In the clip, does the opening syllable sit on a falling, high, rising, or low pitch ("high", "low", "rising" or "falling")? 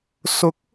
rising